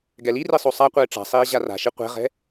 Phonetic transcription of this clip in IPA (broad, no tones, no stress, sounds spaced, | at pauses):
ɡ ɛ l i r i sˤ o sˤ a qʷ ɘː ʈ͡ʂ a̤ sˤ iː ʑ a r a̤ ʃ i qʷ ɛ̤ ʁ ɛ̤